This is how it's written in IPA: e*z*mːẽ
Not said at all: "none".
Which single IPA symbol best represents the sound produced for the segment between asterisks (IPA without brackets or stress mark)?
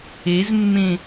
z